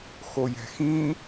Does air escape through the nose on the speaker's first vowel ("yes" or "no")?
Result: no